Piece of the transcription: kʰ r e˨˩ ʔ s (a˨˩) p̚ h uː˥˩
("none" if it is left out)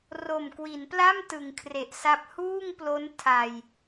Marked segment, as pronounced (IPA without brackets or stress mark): a˦˥